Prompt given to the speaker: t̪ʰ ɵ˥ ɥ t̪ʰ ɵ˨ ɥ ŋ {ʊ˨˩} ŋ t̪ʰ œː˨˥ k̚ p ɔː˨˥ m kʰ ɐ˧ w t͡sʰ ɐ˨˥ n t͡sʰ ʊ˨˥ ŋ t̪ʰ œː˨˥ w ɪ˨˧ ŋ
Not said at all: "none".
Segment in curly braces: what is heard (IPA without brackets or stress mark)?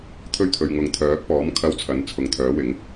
ʊ˨